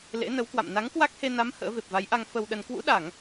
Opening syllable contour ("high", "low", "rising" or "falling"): rising